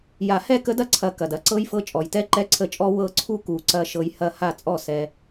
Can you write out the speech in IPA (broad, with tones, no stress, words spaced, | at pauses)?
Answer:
ja˨˩˦hɛ˥˩kə˧˥dɐ˥˩ ǀʰɐ˧ kɐ˩d ɐ˧ǀɤ˧˥jfɤ˧ t͡ʃʼɔ˩jtɛ˧˥ ǃɛ˧˥ǀʰə˧t͡ʃʼɔ˧˥ wɤ˧˥ǀʰu˥˩ ku˨˩˦ǀɐ˧ ʃɤ˧jhɐ˥˩ ha˥˩t͡sʼɔ˥˩ sɛ˧